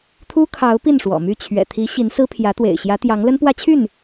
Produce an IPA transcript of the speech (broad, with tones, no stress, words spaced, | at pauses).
t̪ʰu˥kʰɑ˧˥ʊ̯ pi˥˩nʂwɔ̰˨˩my˥˩ t͡ɕʰɥɛ̰˨˩t̪ʰi˧˥ ɕi˧˥nsɹ̩˥pʰjä˧˥t̪wḛ˨˩ɪ̯ ɕjä˧˥t̪jɑ˧˥ŋ lə˥npwä˥t͡ɕʰy˥˩n